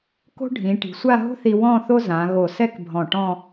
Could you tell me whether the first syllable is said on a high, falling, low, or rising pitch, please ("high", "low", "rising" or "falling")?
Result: high